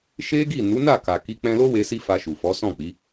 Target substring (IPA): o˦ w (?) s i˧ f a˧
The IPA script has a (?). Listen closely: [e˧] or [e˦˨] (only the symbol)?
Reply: e˧